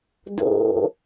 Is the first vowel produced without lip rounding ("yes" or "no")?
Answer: no